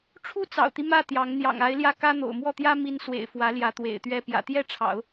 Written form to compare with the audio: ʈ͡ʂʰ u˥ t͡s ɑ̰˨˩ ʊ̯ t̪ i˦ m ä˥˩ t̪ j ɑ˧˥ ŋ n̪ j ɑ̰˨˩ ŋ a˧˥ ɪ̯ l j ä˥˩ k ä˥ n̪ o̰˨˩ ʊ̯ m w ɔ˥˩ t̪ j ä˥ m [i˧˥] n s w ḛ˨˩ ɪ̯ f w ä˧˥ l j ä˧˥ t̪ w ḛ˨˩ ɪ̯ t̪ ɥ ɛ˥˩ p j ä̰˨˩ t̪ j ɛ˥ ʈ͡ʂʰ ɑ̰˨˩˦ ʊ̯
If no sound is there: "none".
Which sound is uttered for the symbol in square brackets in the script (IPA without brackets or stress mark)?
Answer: i˧˥